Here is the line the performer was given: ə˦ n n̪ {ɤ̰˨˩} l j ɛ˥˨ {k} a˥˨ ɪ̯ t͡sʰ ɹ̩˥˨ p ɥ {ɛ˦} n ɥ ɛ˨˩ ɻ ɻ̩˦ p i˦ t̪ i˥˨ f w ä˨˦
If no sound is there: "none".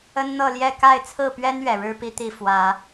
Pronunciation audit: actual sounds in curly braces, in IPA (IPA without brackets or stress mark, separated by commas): ɤ˥˨, k, ɛ˦